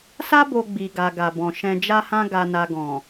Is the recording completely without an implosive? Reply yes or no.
yes